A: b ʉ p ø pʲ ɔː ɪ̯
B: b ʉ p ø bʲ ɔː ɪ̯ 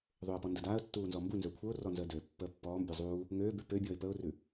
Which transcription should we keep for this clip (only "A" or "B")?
B